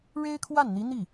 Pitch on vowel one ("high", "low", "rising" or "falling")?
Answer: high